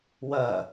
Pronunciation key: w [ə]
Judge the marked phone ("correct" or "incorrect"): incorrect